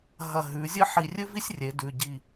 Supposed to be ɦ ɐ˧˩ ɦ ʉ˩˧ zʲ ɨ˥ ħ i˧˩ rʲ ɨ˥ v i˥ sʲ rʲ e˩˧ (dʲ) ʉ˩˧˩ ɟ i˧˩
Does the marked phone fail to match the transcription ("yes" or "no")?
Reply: yes